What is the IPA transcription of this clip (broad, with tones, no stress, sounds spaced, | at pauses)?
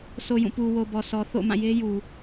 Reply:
s o˨ j ũ˦˨ p u˨ w o˨ b ɔ˨ s ɔ˨ θ o̰˦˨ m ã˦˨ j e˦ j u˨